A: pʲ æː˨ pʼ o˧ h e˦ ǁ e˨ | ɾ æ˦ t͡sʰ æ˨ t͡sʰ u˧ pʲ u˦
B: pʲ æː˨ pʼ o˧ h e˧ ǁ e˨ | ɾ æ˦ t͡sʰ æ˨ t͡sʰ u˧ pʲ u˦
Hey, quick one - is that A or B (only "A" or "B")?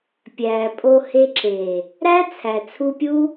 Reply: B